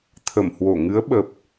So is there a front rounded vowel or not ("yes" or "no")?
no